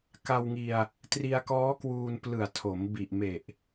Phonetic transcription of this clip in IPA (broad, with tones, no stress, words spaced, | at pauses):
ka˧wŋi˧a̯ | tri˧a̯kɔː˦˥kwuː˧n plɯ˨˩a̯ tʰo˩˦m bi˨˩ʔme˨˩ʔ